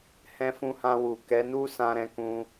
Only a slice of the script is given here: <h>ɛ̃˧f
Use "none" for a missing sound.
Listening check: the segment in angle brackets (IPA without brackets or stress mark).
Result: h